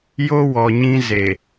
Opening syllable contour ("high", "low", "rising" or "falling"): high